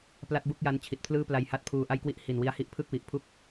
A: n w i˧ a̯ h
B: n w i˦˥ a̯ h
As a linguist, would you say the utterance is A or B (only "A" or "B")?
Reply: B